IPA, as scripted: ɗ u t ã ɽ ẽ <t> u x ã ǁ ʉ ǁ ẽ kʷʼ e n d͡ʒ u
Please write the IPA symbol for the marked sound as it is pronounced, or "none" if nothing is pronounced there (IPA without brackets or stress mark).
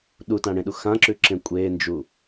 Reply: ɗ